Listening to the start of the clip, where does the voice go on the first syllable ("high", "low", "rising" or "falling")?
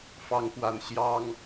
rising